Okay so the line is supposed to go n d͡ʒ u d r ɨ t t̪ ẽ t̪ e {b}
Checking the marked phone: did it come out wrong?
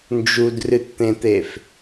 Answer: yes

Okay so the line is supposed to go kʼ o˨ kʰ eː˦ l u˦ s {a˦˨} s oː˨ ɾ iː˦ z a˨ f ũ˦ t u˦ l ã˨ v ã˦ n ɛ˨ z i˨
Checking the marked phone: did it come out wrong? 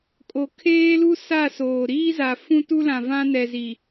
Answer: no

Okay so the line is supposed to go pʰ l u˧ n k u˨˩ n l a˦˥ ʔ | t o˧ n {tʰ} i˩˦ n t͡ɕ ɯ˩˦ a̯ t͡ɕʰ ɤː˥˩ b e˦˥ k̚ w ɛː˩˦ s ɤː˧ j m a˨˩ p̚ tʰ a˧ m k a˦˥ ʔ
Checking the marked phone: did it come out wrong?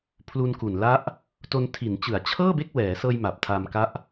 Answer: no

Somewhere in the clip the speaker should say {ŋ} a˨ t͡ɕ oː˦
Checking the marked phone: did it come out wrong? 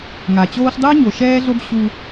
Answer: no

